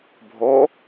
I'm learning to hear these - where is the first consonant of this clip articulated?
lips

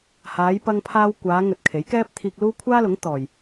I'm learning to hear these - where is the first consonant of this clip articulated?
throat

